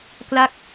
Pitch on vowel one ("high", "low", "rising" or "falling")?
falling